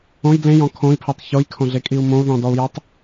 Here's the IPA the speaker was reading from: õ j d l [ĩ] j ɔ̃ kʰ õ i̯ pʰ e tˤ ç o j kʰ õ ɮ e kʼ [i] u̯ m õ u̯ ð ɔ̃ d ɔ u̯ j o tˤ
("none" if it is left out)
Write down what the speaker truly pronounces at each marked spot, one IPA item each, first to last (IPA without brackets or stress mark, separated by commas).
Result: ẽ, i